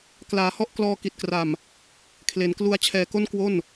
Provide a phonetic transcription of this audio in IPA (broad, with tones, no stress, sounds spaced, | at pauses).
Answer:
k l aː˩˦ h ɔ˦˥ ʔ k l ɔː˧ k i˨˩ t̚ k r a˨˩ m | kʰ l e˩˦ n k l u˦˥ a̯ t͡ɕʰ ɛː˧ k o˥˩ n k w o˥˩ n